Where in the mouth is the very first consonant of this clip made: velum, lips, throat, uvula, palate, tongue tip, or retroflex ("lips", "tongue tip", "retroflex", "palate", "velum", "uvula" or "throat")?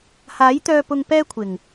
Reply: throat